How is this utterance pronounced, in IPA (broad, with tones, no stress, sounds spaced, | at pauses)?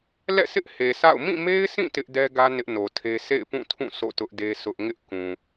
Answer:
l ɛ̰˦˨ sʰ ɪ˦ ʔ h e˨ s a̰˦˨ ʊ̯ m ĩ˦˨ m e˦ ɪ̯ s ĩ˦˨ t ɪ˦ ʔ d ɛ˦ ɡ ä˦ n ɪ˦ ʔ n o˨ tʰ e˦ sʰ ḛ˦˨ ɪ̯ p ũ˦˨ tʰ ũ˦˨ s o̰˦˨ t ʊ˦ ʔ d e˦ sʰ ʊ˦ ʔ ŋ ɪ˦ ʔ k ũ˨